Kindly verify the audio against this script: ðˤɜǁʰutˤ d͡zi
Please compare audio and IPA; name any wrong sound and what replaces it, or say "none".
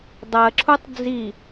ðˤ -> dˤ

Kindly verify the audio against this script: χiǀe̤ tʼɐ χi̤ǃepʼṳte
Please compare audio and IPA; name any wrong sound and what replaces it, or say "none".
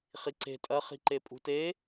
none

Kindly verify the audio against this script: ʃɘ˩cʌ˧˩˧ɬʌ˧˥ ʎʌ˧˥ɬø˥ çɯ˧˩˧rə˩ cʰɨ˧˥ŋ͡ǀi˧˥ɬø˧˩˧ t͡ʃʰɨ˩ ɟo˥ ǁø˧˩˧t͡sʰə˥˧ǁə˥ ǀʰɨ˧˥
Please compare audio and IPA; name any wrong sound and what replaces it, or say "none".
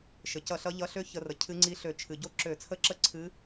ɯ˧˩˧ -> ə˧˩˧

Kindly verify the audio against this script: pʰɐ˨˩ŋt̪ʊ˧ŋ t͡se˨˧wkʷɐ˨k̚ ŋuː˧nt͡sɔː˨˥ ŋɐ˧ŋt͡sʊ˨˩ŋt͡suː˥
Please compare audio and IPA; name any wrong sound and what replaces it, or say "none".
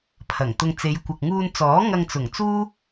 w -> j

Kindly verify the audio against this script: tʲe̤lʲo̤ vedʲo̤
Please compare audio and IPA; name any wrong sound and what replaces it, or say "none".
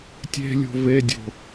none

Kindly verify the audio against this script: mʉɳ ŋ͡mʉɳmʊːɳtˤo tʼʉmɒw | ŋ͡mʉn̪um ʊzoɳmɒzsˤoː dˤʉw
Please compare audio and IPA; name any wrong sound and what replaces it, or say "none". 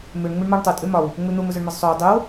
none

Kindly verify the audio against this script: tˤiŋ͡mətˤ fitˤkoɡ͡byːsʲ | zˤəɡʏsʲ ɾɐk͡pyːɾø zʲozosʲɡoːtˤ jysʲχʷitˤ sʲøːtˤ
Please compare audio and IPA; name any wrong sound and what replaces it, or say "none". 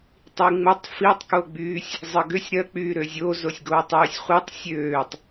none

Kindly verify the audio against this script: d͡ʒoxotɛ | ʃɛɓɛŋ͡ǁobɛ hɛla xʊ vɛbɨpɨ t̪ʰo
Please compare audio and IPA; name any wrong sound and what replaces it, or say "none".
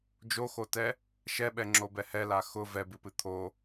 none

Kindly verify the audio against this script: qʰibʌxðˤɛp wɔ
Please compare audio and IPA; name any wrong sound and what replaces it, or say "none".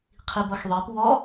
none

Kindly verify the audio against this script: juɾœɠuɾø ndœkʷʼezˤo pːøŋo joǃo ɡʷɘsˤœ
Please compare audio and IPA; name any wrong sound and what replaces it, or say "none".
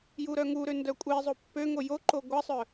ɠ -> ŋ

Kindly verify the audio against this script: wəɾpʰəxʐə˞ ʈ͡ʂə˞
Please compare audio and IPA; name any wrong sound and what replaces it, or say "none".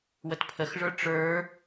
ɾ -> t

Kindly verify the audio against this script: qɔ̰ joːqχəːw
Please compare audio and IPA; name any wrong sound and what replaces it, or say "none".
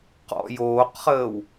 none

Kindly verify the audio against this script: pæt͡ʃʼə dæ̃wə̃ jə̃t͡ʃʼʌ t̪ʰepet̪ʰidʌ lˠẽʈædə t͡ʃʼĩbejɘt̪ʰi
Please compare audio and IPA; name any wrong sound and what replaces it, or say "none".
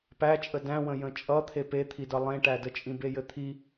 none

